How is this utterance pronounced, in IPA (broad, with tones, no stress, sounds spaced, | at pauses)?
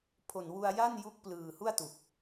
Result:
pʰ o˨˩ n w u˧ a̯ j a˥˩ n j u˦˥ k̚ p l ɯː˨˩ h u˥˩ a̯ t u˨˩ k̚